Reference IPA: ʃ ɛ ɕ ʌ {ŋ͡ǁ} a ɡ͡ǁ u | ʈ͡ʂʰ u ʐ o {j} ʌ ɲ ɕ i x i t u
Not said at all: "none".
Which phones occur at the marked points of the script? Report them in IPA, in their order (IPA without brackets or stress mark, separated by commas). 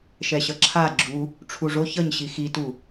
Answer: ǁʰ, ç